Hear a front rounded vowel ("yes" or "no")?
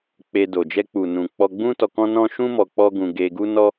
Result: no